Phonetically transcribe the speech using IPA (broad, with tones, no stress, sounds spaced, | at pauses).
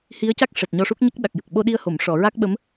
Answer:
h i˧˥ ə̯ c a˦˥ k̚ ʂ ɛ˨˩ t̚ ɲ ɔ˧ ʂ u˦˥ k̚ ɲ ə˦˥ k̚ ɗ a˨˩ k̚ j ə˨˩ k̚ ɓ o˧ ɗ i˧ ə̯ h o˨˩˨ m ʂ ɔ˨˩˨ ɹ a˦˥ k̚ ɓ ə˧˥ m